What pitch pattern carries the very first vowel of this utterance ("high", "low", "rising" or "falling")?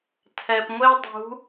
low